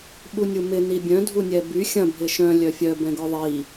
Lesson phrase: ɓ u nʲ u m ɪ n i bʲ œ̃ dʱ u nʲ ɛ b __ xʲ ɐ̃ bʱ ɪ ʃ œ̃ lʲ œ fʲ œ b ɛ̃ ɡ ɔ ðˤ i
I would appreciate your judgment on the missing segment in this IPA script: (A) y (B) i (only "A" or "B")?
A